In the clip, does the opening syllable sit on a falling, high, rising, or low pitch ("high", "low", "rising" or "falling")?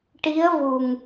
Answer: rising